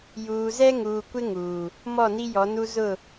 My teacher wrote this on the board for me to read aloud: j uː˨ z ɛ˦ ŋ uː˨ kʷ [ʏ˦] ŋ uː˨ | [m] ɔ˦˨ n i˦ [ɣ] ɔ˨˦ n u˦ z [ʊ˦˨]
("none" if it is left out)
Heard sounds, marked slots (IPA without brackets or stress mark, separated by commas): ɪ˦, m, j, ʊ˦˨